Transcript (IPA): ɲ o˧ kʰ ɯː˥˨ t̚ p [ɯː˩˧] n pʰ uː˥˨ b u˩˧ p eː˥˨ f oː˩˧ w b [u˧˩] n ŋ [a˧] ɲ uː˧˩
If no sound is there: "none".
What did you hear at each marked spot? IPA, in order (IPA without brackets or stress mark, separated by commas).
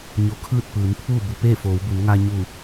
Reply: ɯː˩˧, u˩˧, a˧